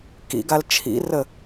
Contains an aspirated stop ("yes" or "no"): yes